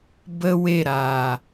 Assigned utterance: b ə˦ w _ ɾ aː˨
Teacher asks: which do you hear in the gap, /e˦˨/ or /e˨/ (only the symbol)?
e˦˨